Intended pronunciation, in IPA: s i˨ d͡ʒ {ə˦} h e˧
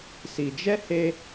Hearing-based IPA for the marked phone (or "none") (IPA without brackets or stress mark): ɛ˦